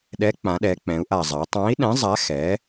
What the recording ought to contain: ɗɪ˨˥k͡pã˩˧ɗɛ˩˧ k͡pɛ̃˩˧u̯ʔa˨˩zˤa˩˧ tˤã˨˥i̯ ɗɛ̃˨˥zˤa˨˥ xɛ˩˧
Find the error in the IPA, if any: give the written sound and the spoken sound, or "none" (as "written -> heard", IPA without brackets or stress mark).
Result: ɪ˨˥ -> ɛ˨˥